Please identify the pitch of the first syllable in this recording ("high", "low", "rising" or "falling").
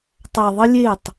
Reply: low